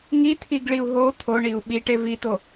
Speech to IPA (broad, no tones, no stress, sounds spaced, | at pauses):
ŋ i t̪ʰ i ɡ ɭ i u̯ ɦ o t̪ʰ o ɳ i u̯ ɓ i ʈ e v i t̪ o